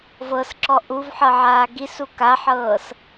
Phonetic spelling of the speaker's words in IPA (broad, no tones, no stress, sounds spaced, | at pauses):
v ɤ s ǁ ɔ ʔ u v ħ ɤ ʕ aː ɡ i s u k a ħ ɤː s